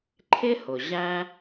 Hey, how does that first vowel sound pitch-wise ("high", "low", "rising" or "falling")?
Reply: high